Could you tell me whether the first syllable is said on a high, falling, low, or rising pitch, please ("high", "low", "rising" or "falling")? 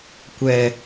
high